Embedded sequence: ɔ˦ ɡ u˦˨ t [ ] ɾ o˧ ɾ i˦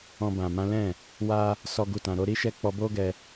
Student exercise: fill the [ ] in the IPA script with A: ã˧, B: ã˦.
A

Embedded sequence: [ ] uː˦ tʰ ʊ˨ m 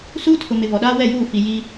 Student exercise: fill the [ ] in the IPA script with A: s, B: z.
A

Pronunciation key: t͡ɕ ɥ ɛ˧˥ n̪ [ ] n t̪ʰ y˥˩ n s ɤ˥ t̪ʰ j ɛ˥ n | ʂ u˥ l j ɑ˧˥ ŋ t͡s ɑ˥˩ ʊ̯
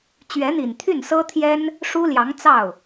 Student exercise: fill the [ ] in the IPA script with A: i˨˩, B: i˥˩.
A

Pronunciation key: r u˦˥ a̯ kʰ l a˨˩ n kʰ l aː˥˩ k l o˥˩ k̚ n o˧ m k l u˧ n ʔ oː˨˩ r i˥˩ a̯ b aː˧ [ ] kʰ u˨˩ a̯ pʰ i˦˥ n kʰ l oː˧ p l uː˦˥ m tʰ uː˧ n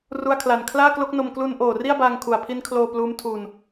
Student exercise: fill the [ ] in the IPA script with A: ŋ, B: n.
A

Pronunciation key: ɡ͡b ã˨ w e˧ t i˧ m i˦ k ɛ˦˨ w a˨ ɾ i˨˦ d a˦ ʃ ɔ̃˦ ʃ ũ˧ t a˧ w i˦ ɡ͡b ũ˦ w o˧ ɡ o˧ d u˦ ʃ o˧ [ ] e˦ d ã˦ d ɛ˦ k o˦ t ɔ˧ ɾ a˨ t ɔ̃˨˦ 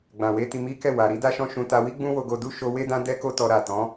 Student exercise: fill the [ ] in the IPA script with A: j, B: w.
B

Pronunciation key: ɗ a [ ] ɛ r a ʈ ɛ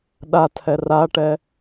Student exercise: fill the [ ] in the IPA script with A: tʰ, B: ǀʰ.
A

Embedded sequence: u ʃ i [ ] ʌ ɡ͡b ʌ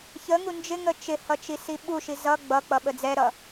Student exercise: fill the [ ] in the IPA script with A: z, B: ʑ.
A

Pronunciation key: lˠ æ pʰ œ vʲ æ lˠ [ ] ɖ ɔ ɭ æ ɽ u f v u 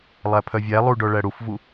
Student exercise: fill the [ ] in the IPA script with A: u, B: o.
A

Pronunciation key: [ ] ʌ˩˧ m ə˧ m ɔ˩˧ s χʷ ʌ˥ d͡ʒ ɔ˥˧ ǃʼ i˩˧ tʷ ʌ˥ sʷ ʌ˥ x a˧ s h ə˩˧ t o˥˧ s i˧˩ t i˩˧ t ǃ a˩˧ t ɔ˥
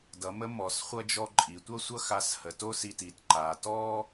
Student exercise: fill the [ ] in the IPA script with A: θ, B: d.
B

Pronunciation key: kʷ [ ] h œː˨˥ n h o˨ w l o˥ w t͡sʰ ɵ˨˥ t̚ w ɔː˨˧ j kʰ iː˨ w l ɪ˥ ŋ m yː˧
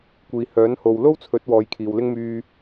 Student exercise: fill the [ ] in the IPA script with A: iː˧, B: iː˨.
B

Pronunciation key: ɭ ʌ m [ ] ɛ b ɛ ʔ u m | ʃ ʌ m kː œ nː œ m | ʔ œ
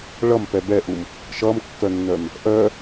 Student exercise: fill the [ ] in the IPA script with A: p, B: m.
A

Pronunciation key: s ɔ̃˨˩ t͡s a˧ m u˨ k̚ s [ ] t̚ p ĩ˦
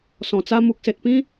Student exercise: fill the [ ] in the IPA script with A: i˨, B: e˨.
B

